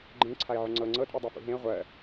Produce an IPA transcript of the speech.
ɡ͡ǃẽ ǀʰaɪ̯ʕʏŋ͡ǀɤ ŋ͡ǀɤ tʼudˤɜfṵɦẽə̯ ʁʷɜ

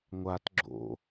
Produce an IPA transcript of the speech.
ŋʷat ɡ͡ǁo̰

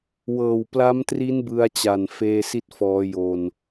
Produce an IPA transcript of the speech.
wɤː˨˩wpla˦˥mtri˦˥n bɯ˦˥a̯t͡ɕa˨˩n feː˧si˥˩t̚ fɔː˦˥jo˧n

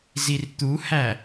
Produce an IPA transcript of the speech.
zirt̪uhæ

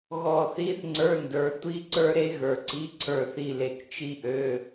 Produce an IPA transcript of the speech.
ɣɔ˦˨ θi˧˥˧θŋ͡ǀə˞˧˥˧ndə˞˨˦ tʷi˧˥˧ǀə˞˦˥ɾe˦˥ ɣə˞˨ǀi˧˥˧ǀʰə˞˦˨ θi˦˨le˨k t͡ʃi˦˥ʔø˧˥˧

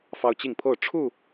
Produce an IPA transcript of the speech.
fɑ˦ʊ̯t͡ɕi˥˨ŋpʰo˥˨ʊ̯ ʈ͡ʂʰu˥˨

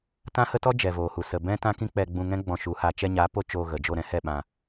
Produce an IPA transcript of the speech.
tã˦hə˦tɔ˦ d͡ʒɛ˨voː˨hu˨ sə˨bɛ̃˦tã˦ kĩ˦k͡pɛ˧ɡ͡bũ˧ŋɛ̃˦ ɡ͡bɔ̃˧ʃu˨˦ha˧ t͡ʃɛ˧ɲa˨˦ po˦t͡ʃoː˧ɣə˨ d͡ʒo˦˨ɾɛ̃˦hɛ˦˨ ɓã˧

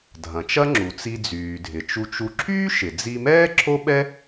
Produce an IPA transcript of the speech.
dʱɐ̃˩t͡ʃɐ˥ŋ͡ǁu˩t͡si˧ d͡zyː˩dʱɪ˩t͡ʃu˧t͡ʃu˧ ǁʰyː˥ʃɪ˩d͡zi˧mɛː˥ ǁʰo˥ɓɛ˥

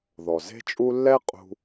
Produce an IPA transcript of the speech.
ðɔ˩ze̤˥t͡ʃʼu˥ lːɛ˥qʼṳ˧

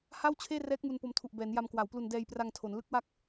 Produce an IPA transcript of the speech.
ha˥˩wt͡ɕʰeː˥˩rɛː˦˥k̚ mu˧npo˧mtʰu˨˩ʔ bɛː˩˦nja˧mkwa˩˦wplu˧n dɛː˧jpra˧ŋ tʰo˩˦n lɯ˦˥k̚wa˦˥k̚

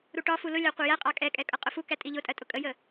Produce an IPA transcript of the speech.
ɾuʈɒfu lʊlʲɑ qʷæjæqʼɑ kʼɛkʼɛ kʼʌqʼʊfukæ tʼiʎʊtʼɜ tʼʊkʼəjə

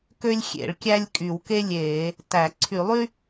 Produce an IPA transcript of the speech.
kø˥lʲxʲḛ˧˩˧ɭkʲæ˥lʲ kʼy˧˩˧wke˥lʲeː˧˩˧ | tæ˧˩˧ ǀʰy˧˩˧lˠy˥

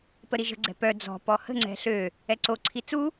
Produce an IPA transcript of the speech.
pəɾiʒə̤ɡ͡ǀɛ̤ pœ d͡zɔ̤ pɔhə̤ŋ͡ǀɛ̤ ɬø | ɛǀoǀʰi t͡su

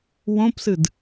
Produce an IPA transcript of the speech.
wõpsɨd

